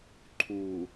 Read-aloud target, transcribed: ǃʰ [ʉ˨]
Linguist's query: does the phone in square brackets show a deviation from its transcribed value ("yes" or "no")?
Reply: yes